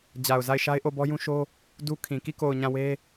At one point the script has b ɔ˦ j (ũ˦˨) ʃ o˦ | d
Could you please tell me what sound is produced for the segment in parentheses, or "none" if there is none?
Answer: ũ˦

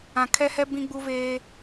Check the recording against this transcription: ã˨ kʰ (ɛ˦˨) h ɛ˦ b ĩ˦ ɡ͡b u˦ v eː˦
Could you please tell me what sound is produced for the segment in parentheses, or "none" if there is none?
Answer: ɛ˦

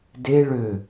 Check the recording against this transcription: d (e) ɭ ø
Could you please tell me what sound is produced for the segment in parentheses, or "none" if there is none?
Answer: e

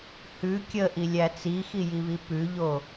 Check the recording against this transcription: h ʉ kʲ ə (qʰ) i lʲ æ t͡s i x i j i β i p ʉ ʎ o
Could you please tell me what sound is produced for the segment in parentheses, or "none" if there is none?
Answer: ʔ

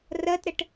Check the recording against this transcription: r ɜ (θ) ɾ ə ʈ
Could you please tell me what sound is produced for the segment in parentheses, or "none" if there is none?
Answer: t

